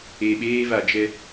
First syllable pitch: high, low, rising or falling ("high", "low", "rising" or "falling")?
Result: low